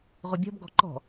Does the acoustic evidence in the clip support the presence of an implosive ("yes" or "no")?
no